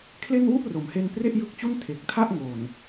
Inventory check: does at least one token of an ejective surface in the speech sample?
no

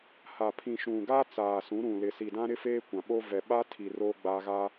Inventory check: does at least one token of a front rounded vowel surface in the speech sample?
no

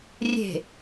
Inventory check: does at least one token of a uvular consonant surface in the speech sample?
no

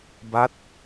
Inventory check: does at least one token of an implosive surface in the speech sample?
no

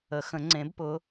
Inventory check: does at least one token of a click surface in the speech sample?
yes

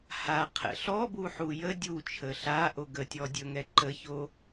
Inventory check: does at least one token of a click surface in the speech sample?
yes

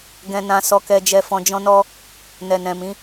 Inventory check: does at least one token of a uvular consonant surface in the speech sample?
no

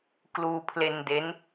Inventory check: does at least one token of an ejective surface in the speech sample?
no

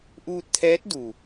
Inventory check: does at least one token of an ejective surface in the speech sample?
no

